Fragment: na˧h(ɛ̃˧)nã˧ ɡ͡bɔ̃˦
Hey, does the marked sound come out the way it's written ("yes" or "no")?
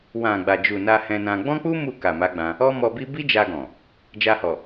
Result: yes